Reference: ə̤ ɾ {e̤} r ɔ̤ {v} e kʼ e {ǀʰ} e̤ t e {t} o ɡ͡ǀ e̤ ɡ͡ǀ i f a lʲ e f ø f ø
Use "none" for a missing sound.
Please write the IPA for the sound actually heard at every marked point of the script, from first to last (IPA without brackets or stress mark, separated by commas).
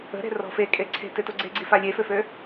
e̤, f, ǀʰ, t